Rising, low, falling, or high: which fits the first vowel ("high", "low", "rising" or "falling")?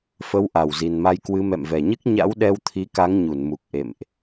rising